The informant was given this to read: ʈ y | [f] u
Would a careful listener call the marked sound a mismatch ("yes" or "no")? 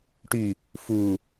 no